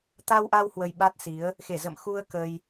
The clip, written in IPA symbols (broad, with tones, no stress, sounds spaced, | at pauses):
t̪ a˧ w ʔ a˧ w h w ə˧ j ɓ a˦˥ t̚ s i˨˦ ə̯ | x e˧˩ z ə̰˧˨ m x u˧ ə̯ k ə˧ j